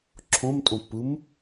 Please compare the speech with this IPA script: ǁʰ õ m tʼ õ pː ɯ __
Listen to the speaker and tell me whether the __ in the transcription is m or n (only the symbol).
m